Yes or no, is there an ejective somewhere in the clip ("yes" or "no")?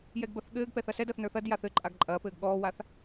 yes